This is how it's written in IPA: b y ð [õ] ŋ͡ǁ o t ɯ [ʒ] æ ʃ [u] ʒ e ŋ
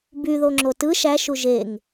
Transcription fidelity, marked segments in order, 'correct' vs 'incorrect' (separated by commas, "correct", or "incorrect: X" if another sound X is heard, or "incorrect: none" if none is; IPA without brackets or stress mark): incorrect: o, incorrect: ʃ, correct